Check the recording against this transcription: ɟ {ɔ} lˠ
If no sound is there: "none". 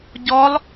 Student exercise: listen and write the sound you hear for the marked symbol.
ɔ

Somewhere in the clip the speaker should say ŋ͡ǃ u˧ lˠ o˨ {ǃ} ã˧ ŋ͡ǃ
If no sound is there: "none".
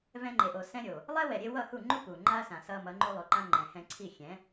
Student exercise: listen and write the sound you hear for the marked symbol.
ǃ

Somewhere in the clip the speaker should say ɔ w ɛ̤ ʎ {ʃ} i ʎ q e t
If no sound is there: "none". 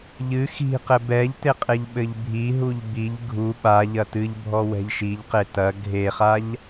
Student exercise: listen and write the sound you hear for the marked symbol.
ʃ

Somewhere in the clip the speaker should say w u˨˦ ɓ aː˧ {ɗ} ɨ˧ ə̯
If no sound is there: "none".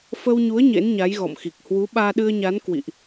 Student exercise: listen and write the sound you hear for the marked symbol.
ɗ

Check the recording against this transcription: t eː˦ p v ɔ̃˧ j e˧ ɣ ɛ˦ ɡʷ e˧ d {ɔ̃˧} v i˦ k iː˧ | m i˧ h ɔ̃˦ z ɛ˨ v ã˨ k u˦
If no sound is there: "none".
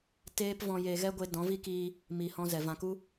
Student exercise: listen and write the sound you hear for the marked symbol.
ɔ̃˨˦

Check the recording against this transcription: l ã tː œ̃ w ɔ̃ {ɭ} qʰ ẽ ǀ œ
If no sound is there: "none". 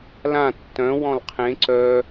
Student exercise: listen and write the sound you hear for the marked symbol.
l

